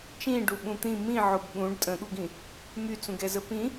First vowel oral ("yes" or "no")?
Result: no